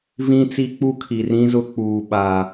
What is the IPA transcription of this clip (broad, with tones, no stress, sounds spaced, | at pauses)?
v ĩ˦ t͡s i˦ k͡p u˦ kʰ i˨ r ĩ˦ z ʊ˦ k͡p uː˨ ɓ a˨